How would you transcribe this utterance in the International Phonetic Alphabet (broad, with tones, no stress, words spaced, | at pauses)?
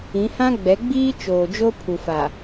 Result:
ĩ˨˦hã˦ɡ͡bɛ˨˦ɡ͡biː˦ t͡ʃoː˨d͡ʒo˦pʰu˨fa˨